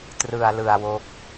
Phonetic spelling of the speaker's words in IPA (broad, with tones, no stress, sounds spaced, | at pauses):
t r ɯ˧ a̯ l ɯ˧ a̯ w o˦˥ k̚